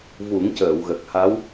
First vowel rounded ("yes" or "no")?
yes